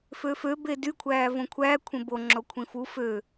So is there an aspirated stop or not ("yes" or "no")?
yes